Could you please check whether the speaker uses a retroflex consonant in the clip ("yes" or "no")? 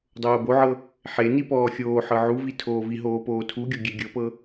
no